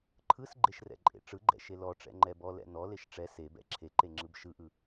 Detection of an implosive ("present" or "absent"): absent